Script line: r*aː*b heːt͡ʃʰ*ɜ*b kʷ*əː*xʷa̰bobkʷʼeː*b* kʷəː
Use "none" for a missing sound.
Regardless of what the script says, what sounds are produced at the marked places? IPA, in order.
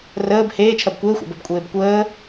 əː, ɜ, əː, b

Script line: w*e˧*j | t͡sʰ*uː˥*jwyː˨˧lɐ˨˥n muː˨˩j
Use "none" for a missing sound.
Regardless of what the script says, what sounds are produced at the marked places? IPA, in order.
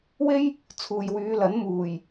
e˥, uː˨

